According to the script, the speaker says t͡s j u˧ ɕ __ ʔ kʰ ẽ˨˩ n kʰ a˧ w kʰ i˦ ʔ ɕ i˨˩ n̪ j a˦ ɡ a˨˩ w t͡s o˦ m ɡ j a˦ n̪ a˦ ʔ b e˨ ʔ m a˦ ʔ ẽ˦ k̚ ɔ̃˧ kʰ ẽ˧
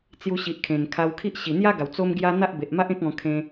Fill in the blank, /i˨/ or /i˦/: i˨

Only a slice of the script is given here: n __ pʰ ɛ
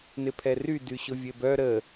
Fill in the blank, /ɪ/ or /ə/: ɪ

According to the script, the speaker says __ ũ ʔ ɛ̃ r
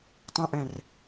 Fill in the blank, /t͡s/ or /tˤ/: tˤ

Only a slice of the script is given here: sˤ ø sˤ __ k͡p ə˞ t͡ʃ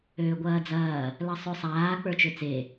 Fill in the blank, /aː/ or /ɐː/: aː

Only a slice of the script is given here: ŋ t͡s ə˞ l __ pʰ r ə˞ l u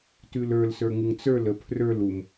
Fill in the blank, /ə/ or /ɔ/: ə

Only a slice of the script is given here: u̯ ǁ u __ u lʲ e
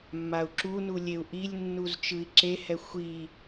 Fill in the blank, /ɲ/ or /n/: n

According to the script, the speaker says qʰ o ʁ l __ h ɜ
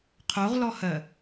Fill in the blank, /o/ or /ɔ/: ɔ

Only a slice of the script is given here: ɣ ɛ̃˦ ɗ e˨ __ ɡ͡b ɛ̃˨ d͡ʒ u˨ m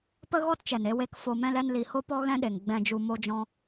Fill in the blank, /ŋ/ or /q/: ŋ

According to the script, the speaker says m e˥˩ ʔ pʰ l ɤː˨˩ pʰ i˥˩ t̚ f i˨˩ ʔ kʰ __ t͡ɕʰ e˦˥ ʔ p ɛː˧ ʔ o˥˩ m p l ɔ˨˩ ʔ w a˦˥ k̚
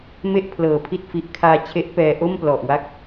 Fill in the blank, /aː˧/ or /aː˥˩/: aː˧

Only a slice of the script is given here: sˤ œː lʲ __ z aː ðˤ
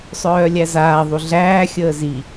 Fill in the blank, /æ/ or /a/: æ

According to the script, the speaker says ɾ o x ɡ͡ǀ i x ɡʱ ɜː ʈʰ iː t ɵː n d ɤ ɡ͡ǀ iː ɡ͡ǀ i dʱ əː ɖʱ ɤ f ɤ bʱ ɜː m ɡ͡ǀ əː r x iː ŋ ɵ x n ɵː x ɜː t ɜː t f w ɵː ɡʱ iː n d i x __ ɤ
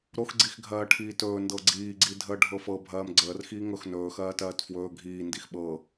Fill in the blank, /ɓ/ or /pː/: ɓ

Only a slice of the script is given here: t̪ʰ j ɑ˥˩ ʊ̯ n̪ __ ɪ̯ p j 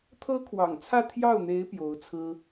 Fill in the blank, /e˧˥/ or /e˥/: e˧˥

